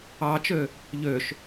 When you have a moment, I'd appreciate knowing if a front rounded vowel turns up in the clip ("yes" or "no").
yes